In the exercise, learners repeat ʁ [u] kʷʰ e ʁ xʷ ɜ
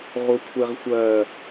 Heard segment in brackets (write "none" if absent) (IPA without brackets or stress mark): u